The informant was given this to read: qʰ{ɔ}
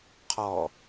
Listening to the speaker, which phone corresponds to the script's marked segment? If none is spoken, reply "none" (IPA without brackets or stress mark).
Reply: ɔ